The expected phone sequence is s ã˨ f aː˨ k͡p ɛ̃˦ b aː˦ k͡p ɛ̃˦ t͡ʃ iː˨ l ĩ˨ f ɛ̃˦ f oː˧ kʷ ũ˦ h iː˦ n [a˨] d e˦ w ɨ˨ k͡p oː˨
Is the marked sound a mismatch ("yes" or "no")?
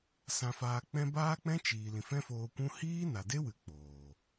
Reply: no